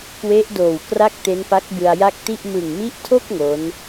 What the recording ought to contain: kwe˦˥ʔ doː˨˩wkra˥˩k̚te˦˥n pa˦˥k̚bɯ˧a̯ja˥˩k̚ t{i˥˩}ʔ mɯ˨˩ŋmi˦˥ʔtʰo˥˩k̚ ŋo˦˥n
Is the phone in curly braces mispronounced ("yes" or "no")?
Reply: no